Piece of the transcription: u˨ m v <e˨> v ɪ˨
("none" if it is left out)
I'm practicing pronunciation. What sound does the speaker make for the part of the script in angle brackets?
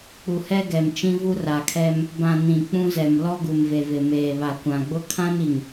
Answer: e˨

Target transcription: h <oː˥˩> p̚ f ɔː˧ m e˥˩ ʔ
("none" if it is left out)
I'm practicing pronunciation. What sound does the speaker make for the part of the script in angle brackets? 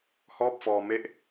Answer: ɔː˥˩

